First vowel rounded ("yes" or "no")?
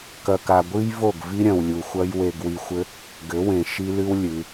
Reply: no